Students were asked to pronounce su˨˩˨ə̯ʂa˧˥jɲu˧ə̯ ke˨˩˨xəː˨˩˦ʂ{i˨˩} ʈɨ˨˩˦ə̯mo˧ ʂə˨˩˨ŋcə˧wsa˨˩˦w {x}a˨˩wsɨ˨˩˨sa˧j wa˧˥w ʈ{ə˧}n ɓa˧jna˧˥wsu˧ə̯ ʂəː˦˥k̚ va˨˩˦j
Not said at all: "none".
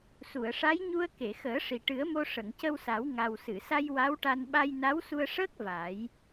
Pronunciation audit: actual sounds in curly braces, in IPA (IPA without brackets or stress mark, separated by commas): i˨˩, ŋ, a˧